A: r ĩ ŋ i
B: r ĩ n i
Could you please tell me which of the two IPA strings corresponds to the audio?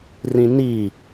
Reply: B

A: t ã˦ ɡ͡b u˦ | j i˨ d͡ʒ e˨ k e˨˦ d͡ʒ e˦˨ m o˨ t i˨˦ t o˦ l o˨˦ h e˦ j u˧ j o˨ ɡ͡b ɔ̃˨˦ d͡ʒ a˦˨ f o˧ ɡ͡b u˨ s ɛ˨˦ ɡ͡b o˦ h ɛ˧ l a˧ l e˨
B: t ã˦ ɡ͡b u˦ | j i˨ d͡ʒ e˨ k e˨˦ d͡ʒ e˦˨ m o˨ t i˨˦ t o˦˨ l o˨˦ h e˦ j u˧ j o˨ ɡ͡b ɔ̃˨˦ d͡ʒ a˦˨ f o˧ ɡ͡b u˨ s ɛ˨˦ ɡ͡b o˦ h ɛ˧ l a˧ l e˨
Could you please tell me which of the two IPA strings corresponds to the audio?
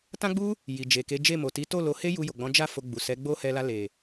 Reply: B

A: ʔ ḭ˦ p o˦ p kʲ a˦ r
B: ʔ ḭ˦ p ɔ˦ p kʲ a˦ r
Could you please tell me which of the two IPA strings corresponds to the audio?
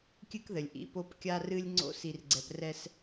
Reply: A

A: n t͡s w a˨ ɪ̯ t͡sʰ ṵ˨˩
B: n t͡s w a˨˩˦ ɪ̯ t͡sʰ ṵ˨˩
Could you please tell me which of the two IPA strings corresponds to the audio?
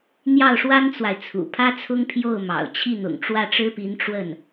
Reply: A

